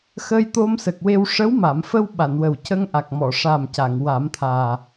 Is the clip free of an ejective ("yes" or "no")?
yes